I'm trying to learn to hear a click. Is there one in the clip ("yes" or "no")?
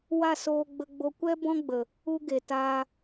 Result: no